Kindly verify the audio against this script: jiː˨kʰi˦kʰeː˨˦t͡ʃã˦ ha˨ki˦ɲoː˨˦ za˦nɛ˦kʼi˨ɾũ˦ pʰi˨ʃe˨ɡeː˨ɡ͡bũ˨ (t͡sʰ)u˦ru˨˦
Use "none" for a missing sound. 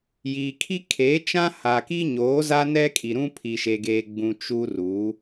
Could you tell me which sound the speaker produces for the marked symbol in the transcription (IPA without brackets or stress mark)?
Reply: t͡ʃ